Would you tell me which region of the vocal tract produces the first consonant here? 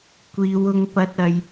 velum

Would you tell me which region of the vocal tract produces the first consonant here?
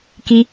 velum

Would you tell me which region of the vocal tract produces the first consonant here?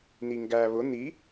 tongue tip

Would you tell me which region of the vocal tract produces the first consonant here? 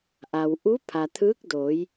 throat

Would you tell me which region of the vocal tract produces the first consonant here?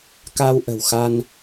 velum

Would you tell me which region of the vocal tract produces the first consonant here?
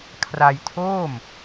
velum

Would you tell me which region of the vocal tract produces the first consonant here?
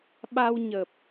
lips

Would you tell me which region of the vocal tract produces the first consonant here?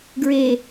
velum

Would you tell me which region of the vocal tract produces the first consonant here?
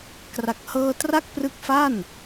velum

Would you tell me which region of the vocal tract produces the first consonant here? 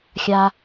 velum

